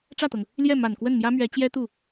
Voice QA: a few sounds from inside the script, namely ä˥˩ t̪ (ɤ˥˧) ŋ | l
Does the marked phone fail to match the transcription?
yes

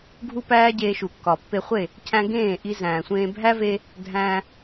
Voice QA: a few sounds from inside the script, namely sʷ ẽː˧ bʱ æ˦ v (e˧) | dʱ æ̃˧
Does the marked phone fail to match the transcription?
no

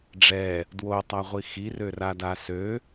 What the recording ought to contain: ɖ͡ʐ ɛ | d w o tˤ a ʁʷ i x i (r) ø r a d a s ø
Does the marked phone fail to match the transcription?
no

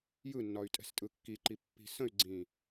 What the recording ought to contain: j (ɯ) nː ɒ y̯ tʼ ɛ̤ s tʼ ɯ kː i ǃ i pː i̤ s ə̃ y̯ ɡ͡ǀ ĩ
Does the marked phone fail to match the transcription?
no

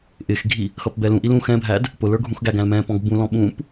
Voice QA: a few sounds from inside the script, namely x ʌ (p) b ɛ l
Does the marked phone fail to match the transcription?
no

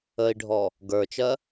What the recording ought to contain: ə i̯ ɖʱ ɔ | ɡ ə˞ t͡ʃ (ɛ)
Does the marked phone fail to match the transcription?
yes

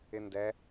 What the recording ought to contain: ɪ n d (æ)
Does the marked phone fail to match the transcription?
yes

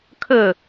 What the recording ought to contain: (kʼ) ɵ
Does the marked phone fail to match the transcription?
yes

